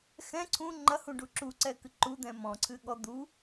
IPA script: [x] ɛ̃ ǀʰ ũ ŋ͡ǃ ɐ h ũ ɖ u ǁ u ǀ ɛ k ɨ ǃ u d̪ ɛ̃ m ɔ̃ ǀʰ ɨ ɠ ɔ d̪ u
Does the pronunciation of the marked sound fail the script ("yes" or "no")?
no